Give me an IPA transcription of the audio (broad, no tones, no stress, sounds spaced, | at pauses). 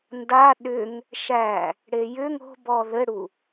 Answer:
n d a ɗ ʏ ŋ | ʃ æ | ɽ e j ʏ ŋ o̤ b ɔ ð ɘ ɽ u